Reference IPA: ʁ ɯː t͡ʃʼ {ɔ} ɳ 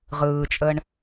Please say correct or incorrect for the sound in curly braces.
incorrect